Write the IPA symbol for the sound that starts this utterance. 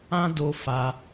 ã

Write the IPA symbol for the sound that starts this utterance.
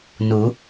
n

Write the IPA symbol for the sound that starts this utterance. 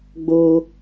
ɡ͡b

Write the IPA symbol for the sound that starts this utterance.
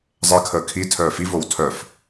zˤ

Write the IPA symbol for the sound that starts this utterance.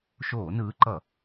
ʃ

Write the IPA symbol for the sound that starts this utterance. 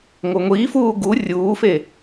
ŋʷ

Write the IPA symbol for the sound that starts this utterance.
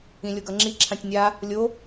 ĩ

